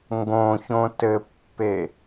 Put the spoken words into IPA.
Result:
ŋɡõçõ tɘpːe

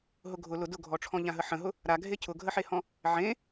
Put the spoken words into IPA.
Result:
ɦʊɡʱʊ lʊ dʊɡʱɔʈ͡ʂʰɔ̃ ʎãɦəħə̃ɦʊ | ɾaɡʱe cʰʊɡʱəħehɔ̃ | ʕẽ

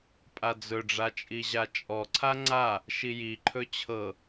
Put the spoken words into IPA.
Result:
pʼad͡zɵɖ͡ʐa t͡ʃʼiʑat͡ʃʼɔǀʰa ŋ͡ǀa | ʃijiǃʰɵ t͡ɕʰɤ

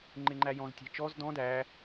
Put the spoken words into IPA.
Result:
ŋ͡ǃɪŋ͡ǃæjɔ̃z tʲæ̤t͡ʃɔz dɔ̃ dæ

